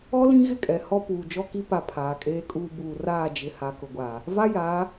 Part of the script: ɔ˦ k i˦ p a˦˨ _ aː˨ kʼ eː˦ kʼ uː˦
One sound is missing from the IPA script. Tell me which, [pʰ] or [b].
pʰ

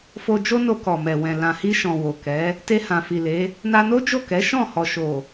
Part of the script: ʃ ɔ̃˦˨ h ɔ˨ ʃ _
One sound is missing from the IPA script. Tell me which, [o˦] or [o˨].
o˨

